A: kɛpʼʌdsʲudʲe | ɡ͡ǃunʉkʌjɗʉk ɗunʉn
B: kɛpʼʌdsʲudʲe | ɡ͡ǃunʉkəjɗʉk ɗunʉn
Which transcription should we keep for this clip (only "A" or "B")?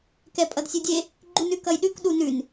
A